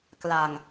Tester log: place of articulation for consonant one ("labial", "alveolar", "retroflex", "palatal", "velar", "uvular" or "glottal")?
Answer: velar